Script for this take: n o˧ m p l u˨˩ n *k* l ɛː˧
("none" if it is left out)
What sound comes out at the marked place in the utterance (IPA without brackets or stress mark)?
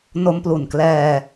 k